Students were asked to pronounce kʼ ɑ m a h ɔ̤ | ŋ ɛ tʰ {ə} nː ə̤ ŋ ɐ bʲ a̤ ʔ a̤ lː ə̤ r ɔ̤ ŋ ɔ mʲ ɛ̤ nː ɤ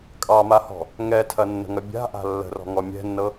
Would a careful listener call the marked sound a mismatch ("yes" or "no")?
yes